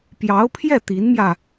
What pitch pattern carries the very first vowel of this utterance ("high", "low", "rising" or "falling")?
rising